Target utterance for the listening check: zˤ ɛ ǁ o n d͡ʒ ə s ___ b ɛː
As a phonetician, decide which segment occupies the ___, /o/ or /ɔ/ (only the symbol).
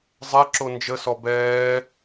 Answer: ɔ